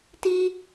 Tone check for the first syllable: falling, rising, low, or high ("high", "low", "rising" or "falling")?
high